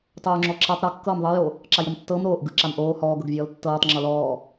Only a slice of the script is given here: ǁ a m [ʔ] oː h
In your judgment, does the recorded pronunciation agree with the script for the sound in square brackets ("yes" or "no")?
yes